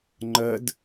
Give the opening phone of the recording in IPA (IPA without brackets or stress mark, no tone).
ŋ͡ǃ